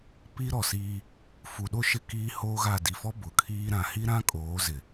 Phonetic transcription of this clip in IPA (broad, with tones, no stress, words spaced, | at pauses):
pi˦ ɾɔ˨siː˦ | fu˨ɗo˦ ʃɪ˦kiː˦hoː˦ɣa˦˨ di˨fɔ˦ bʊ˨˦kʰiː˦ɾã˨ hi˦ɾã˦kʼoː˨˦ zɪ˨